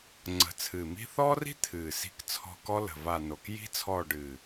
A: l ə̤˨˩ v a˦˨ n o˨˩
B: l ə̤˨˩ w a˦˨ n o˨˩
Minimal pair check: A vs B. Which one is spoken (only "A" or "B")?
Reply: A